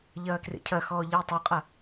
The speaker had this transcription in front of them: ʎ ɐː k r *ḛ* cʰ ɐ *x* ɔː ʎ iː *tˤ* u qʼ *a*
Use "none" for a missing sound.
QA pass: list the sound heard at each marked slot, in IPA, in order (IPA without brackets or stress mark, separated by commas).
ḛ, x, tˤ, a